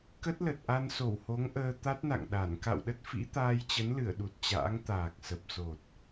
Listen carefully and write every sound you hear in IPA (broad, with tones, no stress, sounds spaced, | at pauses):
k ə˦˥ t̚ l ə˨˩ t̚ ʔ a˧ n s o˧˩ w h o˨˦ ŋ ʔ əː˧ t̪ a˦˥ t̚ n a̰˧˨ ŋ ɗ a˧˩ n k a̰˧˨ w ɗ ə˦˥ t̚ f ḭ˧˥ t̪ aː˧ j t͡ɕ ə˨˦ n l ɨ˧˩ ə̯ ɗ u˨˩ t̚ t͡ɕ a̰ː˧˥ ŋ t̪ aː˨˩ k̚ s ə˨˩ p̚ s o˨˩ t̚